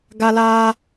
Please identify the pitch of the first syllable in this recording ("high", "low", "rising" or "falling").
high